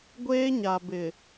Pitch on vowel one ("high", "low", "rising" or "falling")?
high